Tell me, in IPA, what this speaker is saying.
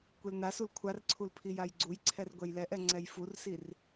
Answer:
kʷ e l n a s u l kʷʰ a r ǀʰ u l pʰ i j a j ɡ͡ǀ u j ǀʰ ɛ r ɡʷ ɛ j l ɛ ʔ ɛ ŋ͡ǀ ɛ j f u r s i r

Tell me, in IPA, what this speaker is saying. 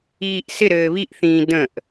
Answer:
iː ʔ s ɪ ɾ ɘː β i ʔ θ ĩː d ə̃ ʔ

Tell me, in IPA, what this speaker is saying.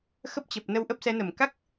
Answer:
x ə˦˥ p̚ t͡ɕ ə˨˩ p̚ n ə˧ w ʔ ə˦˥ p̚ s ɛ˨˦ n ə˧˩ m k a˦˥ k̚

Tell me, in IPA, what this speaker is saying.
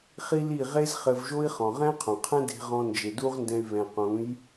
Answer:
χ i˦ l i˦˨ ʁ e˦ z χ ɘ˧ v ʒ o˦ i̯ χ ɔ̃˨ ʁ ɛ̃˦ qʰ õ˨ qʰ ɛ̃˦ d e̤˦ ʁ ɔ̃˦ n d͡ʒ e˨ d u˦ ʁ n d ɛ̃˧ y̯ β ɛ̃˨ q ũ˨˦ j

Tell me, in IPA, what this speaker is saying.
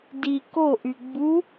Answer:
d i k o ʔ y ɡ͡b u

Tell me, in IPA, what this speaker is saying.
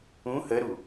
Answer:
ũ h ə ɾ u

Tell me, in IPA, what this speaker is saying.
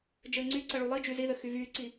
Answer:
d͡ʒ ɘː ŋ͡ǀ y ǀ ə ɭ u lˠ i d͡ʒ y z i ð ɘ x y v yː ǀ i

